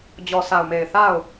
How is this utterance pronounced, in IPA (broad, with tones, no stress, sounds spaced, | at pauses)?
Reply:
d͡ʑ ɔ˨ s a˨ ʊ̯ m e˨ ɪ̯ θ a˦˨ ʊ̯